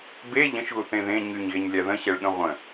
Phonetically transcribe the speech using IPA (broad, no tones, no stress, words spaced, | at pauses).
be ʎə̃ʃɣuθẽ ðẽ ɲyɲɣeɲlʲa ðə̃ɕɛɭɠə̃ ʁʷə̃